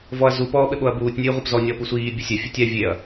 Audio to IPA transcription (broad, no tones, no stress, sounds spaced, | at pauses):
v ɔ ɐ̯ z u p ɔː ɓ ɘ ɓ o ɐ̯ b uː tʲ nʲ ɨː ʁʷ i p z ɔ nʲ ɔː p u sʷ iː bʲ ɨ sʲ ɛ fʲ ɨ tʲ ɛ vʲ e ɐ̯